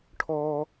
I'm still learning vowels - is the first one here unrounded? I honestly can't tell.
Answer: no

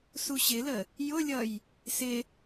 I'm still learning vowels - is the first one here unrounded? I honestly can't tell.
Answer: no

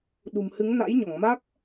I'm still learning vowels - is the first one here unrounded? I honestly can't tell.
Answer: no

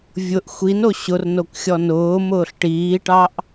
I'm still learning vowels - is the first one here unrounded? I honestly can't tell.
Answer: no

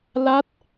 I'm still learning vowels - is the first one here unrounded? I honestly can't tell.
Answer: yes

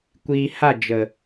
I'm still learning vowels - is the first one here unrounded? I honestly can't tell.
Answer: yes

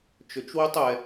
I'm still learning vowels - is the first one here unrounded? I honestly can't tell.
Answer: no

